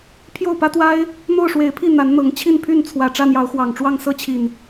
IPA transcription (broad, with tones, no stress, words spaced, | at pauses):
pʰjo˥˨ʊ̯pä˦ t̪wa˦ɪ̯ | n̪o˥˨ʊ̯ʂwe˨˦ɪ̯pʰi˥˨ n̪a˨˦nn̪ɤ˨˦ŋ t͡ɕʰi˥˨n pʰy˥˨nt͡sʰwä˨˩ ʈ͡ʂä˥˨n̪jɑ˨˦ʊ̯xwɑ˨˩ŋʈ͡ʂwɑ˥˨ŋ sɤ˥˨t͡ɕʰi˨˩n